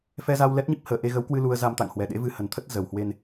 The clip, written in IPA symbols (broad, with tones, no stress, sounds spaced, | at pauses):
f ɛ˧ z a˧ w l ɛ˦˥ t̚ ɲ i˦˥ p̚ h əː˨˩ ʔ e˧ ɣ ə˨˦ w k w ɨ˧ l u˧ ə̯ z a˧ m t̪ a̰˧˨ ŋ h w ɛ˨˩ ɗ ḛ˧˥ v ɨ˧ h ə˨˩ n t̪ʰ ə˦˥ t̚ z ə˨˩ w h w e˧ n